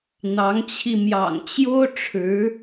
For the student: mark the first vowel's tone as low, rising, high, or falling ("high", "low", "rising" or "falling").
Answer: rising